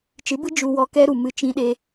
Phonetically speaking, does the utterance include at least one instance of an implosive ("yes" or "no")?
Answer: yes